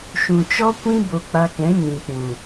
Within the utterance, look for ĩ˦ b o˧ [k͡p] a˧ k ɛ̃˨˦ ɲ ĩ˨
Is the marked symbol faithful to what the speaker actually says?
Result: yes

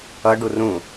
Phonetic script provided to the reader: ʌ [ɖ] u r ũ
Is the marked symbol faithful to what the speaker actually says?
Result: yes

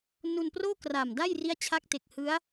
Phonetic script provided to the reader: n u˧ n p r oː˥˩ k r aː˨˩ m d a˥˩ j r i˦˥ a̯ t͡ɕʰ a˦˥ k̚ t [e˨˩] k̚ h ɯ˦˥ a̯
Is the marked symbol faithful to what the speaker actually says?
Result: yes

